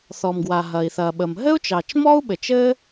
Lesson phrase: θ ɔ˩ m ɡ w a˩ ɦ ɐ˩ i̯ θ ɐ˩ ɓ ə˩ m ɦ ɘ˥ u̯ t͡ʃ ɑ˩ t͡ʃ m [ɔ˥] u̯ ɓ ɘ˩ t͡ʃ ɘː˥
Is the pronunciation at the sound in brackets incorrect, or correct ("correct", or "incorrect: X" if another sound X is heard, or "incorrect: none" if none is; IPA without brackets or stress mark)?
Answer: correct